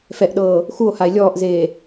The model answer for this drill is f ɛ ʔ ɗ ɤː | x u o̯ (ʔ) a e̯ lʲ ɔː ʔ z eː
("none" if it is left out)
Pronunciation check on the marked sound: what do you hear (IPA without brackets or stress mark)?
h